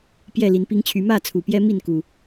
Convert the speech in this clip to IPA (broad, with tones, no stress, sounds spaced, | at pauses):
p j ɛ˥˨ l i˨˦ n p i˦ ŋ t͡ɕʰ y˨˦ m ä˥˨ t͡sʰ u˨˩ p j ɛ˦ m i˥˨ n k u˨˩